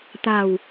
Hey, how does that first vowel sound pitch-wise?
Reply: low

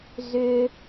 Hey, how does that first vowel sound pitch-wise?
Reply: low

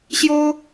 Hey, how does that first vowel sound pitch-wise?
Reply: high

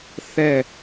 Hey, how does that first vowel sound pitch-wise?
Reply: falling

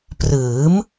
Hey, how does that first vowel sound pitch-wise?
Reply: rising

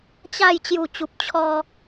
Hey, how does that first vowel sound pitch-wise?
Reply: falling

